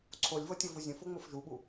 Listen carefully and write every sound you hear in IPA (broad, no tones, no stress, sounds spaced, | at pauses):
ǀʰ o lʲ v ɤ tʲ ɤ v u zʲ ə̃ f o ŋ͡m o f ʒ u ɓ u